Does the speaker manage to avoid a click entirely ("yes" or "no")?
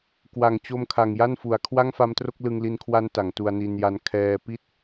yes